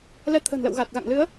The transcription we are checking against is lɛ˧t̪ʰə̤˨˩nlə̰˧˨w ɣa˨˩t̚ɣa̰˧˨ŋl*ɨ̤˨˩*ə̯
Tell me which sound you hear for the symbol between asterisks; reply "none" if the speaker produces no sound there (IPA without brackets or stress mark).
ɨ˨˦